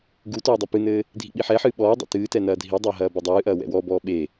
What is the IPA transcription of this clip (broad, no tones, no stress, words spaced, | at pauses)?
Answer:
ɡu tɔːdˤɐpɨnɘː | dʱḭɓiħɛħɨː ɓɔː dˤḛtɨːtɛ nɐːdʱidˤɐː ɦɐːbɐdˤɨːʔɐː wɛ̰wɔbɔː ɓe